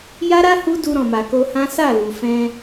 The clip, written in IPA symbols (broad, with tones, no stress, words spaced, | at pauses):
ja˦ɾa˦ hu˦du˧ ɾɔ̃˨ma˨ko˧hã˦ sa˦˨lu˨ fɛ̃˧